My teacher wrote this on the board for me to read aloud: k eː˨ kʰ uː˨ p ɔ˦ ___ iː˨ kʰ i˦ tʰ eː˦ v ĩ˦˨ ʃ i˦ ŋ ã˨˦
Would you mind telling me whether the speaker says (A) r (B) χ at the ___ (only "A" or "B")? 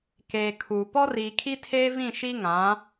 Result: A